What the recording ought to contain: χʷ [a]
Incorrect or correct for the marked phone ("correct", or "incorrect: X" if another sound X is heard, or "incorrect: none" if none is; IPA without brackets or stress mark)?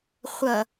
incorrect: ʌ